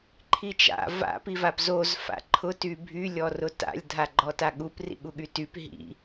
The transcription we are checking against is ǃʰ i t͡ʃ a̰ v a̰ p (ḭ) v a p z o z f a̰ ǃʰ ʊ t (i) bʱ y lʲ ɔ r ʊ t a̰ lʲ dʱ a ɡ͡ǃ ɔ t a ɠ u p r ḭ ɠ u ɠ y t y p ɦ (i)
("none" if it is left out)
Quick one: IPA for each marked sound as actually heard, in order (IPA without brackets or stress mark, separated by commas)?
i, y, ḭ